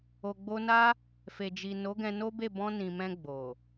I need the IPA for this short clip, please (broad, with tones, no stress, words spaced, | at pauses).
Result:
o˨ɡ͡bo˧na˦ | fe˨d͡ʒi˨ no˨˦ɡɛ̃˧no˦be˦˨ bɔ̃˧ nĩ˨mɛ̃˧ ɡ͡bo˨